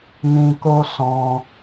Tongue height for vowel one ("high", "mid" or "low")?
high